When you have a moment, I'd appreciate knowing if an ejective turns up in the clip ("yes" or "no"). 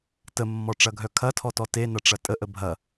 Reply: yes